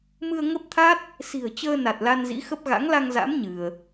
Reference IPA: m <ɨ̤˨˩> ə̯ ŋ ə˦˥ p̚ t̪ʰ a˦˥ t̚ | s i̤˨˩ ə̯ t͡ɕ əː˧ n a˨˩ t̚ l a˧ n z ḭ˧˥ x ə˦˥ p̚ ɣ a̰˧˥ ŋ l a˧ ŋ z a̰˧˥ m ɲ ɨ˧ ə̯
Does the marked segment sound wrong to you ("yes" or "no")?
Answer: yes